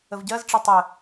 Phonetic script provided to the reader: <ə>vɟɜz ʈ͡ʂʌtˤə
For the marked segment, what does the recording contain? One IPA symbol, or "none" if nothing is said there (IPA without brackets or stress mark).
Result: ə